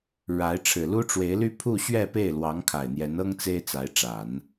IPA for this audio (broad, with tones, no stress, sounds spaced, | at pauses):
ɻ a˧˥ ɪ̯ ʈ͡ʂʰ ɻ̩˨˩ l u˥ ʈ͡ʂ w e˧˥ ɪ̯ l y˥ pʰ u˥˧ ɕ ɥ ɛ˥˧ p e˥˩ ɪ̯ l w ɑ˧˥ ŋ kʰ a˨˩ ɪ̯ n̪ j ɛ˧˥ n ɤ˥ ŋ t͡s e˥ ɪ̯ t͡s a˧˥ ɪ̯ ʈ͡ʂ a˨˩˦ n